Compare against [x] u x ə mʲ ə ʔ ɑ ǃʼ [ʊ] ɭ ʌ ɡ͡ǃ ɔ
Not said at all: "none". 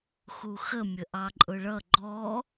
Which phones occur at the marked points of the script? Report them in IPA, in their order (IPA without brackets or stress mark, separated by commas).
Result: x, ʊ